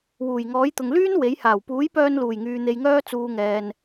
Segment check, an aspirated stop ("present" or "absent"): absent